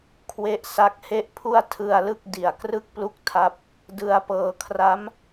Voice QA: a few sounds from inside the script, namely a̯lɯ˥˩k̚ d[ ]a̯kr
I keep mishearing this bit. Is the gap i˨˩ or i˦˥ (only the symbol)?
i˨˩